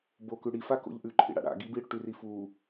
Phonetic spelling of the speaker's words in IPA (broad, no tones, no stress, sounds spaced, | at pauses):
b o k ʉ ɽ i f a k o̰ ʎ ʔ ʉ ǃʰ ḭ ɽ a̰ ɽ a̰ ɡ i b iː ɽ ɵ ʈ ʉ r i f uː